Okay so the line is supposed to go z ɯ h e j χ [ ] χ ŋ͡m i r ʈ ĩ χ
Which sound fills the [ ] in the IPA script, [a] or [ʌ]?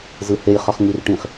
ʌ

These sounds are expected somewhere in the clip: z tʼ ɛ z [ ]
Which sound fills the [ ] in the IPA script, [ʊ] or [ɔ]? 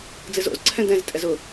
ʊ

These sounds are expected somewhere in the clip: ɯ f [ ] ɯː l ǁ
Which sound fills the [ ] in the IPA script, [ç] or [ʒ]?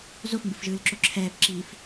ʒ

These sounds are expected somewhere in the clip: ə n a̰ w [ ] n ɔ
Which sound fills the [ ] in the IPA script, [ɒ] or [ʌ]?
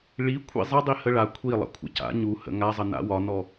ɒ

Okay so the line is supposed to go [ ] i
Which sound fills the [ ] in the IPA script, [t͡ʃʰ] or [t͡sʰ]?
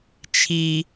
t͡ʃʰ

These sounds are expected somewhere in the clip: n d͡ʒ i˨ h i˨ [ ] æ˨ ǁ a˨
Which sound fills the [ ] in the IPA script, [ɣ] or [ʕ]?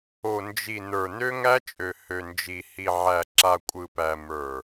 ʕ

